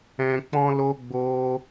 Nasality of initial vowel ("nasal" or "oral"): nasal